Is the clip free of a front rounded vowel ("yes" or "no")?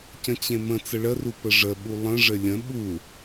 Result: yes